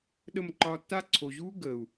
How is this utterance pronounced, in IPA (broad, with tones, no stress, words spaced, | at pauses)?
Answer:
ɗə˦˨m ǃɒː˧tːa˦ ǀʰo˨ʑuː˦ ɡəː˨u̯